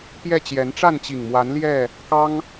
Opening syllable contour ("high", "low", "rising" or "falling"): falling